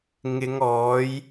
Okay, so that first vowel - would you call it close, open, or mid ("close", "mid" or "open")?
close